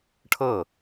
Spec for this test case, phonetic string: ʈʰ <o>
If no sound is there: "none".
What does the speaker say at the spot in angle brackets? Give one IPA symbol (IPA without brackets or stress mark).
ɤ